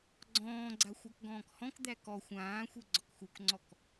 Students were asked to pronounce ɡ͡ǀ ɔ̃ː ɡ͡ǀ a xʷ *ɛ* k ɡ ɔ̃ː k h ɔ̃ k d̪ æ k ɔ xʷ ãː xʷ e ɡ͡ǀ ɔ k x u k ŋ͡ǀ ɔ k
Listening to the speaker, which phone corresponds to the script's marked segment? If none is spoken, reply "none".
æ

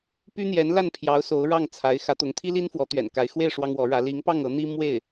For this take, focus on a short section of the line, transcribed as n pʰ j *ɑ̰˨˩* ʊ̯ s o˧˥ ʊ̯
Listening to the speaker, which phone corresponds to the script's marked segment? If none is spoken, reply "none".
ɑ˧˥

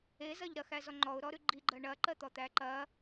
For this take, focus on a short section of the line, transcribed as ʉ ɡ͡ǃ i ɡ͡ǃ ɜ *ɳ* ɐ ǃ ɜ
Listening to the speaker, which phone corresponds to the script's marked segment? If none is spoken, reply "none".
ɳ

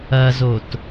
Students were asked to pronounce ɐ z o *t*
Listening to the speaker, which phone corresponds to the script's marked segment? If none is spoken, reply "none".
t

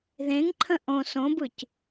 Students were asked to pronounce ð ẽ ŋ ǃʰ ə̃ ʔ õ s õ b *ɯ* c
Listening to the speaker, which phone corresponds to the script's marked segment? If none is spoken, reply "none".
ɯ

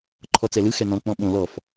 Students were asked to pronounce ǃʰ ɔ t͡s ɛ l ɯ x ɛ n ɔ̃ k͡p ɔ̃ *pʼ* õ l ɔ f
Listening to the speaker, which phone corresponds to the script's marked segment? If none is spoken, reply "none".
ɓ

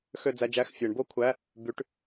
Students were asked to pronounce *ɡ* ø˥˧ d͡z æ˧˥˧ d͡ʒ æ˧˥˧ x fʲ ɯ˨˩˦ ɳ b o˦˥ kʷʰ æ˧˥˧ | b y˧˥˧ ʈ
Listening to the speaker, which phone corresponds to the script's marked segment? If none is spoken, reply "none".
x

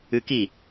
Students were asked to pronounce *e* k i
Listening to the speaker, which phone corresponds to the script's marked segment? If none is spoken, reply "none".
ɨ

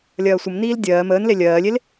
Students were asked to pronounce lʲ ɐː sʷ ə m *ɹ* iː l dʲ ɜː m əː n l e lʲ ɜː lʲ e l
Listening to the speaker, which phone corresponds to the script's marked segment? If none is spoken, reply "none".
n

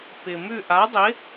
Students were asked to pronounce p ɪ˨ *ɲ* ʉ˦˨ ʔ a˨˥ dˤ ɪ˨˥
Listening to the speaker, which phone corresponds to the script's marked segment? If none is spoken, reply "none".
m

